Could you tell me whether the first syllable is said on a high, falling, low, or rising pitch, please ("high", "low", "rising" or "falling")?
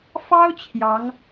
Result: high